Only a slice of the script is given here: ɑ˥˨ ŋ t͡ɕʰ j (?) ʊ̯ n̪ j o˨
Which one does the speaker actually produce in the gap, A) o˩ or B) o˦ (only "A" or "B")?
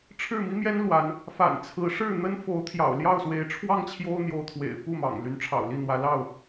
B